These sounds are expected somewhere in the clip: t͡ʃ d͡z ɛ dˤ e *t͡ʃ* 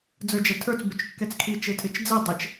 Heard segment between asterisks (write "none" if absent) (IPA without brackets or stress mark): t͡ʃ